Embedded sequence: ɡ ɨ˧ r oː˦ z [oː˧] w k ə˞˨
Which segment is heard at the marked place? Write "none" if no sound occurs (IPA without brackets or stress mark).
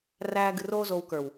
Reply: oː˧